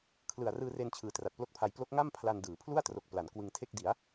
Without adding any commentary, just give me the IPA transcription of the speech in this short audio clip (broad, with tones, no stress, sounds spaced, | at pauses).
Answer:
kʰ l ɯ˨˩ a̯ r ɯː˧ r e˧ n t͡ɕʰ ɯː˨˩ t r a˨˩ t̚ p l o˥˩ k̚ pʰ a˧ j p l o˦˥ k̚ ŋ a˥˩ m pʰ l a˧ n d ɯː˩˦ pʰ l u˥˩ a̯ t r o˨˩ k̚ p l a˩˦ n k w ɯ˧ ŋ tʰ e˥˩ k̚ d i˩˦ a̯